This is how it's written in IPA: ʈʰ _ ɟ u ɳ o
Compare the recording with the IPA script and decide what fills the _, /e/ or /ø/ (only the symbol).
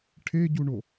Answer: e